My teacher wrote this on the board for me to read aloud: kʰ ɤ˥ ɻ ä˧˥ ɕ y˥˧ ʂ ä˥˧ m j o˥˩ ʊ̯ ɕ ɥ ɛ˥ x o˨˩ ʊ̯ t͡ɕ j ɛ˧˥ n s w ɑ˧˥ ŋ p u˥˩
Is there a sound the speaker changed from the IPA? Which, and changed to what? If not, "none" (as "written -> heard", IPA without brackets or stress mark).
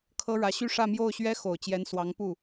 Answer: none